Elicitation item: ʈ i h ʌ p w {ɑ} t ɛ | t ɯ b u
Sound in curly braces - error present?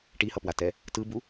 yes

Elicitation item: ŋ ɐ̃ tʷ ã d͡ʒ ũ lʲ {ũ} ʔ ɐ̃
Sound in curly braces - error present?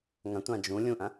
no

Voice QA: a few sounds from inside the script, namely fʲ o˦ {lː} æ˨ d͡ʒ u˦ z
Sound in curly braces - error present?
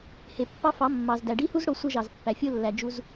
no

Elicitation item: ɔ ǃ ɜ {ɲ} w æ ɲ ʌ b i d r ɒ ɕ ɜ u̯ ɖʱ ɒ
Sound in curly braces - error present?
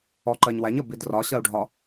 no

